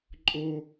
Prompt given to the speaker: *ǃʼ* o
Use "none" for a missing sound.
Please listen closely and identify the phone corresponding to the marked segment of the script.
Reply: ǃʼ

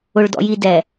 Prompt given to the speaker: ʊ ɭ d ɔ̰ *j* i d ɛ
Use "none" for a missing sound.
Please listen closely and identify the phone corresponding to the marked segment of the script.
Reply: j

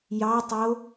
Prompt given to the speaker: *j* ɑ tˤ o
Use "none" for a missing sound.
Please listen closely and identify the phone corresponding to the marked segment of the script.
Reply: j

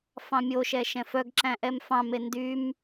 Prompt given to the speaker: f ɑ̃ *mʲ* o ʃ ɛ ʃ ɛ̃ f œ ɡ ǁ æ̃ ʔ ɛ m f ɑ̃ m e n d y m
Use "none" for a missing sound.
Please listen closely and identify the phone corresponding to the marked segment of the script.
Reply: mʲ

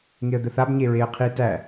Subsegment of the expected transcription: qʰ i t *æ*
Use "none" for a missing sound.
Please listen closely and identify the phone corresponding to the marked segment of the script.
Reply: æ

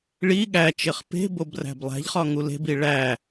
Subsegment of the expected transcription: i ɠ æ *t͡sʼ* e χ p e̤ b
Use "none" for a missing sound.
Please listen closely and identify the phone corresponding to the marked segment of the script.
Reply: t͡ʃ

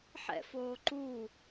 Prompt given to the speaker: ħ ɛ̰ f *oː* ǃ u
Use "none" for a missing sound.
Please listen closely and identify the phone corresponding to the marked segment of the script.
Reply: oː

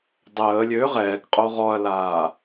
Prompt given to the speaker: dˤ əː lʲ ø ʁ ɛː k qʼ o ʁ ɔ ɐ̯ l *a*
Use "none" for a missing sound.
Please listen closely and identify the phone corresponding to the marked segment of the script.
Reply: aː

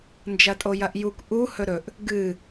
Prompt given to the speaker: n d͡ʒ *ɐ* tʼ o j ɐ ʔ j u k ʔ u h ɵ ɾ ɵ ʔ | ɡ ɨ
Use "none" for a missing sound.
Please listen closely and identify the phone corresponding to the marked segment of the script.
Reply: ɐ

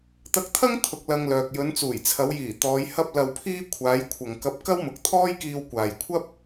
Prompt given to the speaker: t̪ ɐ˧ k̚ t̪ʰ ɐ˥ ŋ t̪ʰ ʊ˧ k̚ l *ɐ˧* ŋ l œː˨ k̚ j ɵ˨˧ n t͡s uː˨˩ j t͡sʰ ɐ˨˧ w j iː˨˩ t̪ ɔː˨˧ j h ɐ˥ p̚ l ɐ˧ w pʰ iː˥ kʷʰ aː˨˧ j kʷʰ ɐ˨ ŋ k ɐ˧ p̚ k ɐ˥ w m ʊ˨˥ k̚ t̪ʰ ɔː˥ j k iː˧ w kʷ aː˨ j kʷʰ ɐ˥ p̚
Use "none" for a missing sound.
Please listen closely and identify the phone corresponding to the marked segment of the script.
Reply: ɐ˧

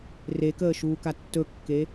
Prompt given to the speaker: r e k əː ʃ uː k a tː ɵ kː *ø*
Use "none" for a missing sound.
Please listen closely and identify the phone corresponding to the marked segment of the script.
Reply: e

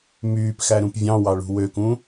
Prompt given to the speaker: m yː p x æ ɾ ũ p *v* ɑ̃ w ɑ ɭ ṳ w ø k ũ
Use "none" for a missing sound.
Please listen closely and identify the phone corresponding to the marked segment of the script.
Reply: vʲ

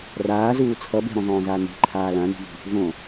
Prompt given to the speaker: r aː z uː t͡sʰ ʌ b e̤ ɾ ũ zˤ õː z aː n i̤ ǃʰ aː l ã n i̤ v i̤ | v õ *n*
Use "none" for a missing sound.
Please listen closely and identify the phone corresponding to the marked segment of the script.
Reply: none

